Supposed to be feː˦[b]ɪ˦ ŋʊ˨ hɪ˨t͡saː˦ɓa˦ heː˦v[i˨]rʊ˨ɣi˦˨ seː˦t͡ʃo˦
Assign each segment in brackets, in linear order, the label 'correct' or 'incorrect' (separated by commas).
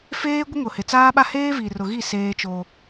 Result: incorrect, correct